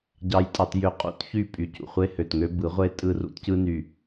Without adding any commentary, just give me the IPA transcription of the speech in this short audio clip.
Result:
ɟɑ˨jtʼɑ˨tjø˨qʼṵ˨˦t çy˦˨pʼy˨ cṵ˨χʷe˦hø˨tŋø˦ bɯ˨˦ʁʷe˦ tʼɯ˦rṵ˦tcɯ˦ ny˨

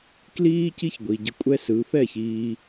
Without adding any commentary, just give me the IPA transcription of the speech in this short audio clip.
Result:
kliː˦ ci˦çɡʷi˨ɟə˧ kʷʼɛ˦sɯ˨˦ fɛ˦˨çiː˧

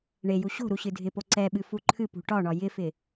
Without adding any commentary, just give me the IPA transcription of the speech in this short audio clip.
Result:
ɳeju ɕo̤ɾu ɕɨdʱɪpo ǀɛɓɨ fuǃʰɨpṳ ʈɒɳɒ jɪfɪ

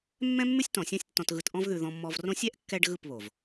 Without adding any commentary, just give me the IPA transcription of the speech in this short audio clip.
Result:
mːɛ̃˦mːʉ˦sʲtɔ̃˨ sʲɔ̃˦sʲtːɔ̃˧tɣɯ˧t ʔɔ̃˧vðʉ˨ ðɔ̃˧mːɔ˧vrõ˦ sʲɛ˦ʔkːɛ˧ɖ ɣɯ˦˨pβo˨v

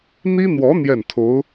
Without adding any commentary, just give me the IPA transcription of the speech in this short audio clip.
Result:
n̪i˥n̪wɔ˧˥ n̪jɛ˥˩nt̪ʰo˧˥ʊ̯

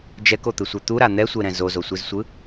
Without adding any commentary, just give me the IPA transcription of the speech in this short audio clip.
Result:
d͡ʒɛkot̪ɯsʷɛ t̪uɾa n̪ɛsʷeɾɛ̃ zozosʷizsʷɯ

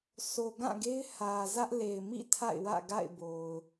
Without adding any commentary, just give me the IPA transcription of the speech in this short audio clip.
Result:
sʰo˨ ɡã˦˨ɡe˦ɪ̯ hä˨zä˦ʔ le˨ɪ̯mḭ˦˨ tʰa̰˦˨ɪ̯wä̰˦˨ɡa̰˦˨ɪ̯ bo˨ʊ̯

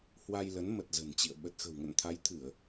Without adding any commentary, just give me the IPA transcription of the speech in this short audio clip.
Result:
hwa˧jlə˨˦n mə˨˩t̚zə̤˨˩nt͡ɕḭ˧˨ə̯ ɓə˨˩t̚xə̤˨˩wŋə̰˧˨n t̪ʰa˨˦jt̪ʰɨ˧˩˨ə̯

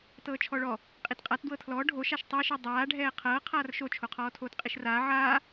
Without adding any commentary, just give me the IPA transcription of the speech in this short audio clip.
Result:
tɤːt͡ʃʰɔɭɔ | qʼitqʼat dwɤtʰlɔː ɖʱoʃaʃ tˤɛʃɯ dˤaːɖʱɛː qʰɤːqʰaːr ʃot͡ʃʰo qʰɔːtʰoːtqʼiʃraː ʕaː

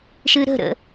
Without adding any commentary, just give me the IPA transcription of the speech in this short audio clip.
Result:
ʃɨɾə̤ɾə̰

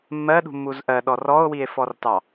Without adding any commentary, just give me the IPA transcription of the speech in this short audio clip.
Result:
mːɜɗṳmːuz ʔɜɗɔ rɔo̯wie̯fɔrtɑ

